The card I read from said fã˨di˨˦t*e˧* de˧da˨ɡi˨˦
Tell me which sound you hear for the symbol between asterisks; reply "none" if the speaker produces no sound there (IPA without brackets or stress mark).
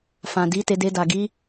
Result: e˧